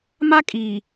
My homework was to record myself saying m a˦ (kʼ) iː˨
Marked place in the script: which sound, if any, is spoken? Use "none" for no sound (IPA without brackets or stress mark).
kʼ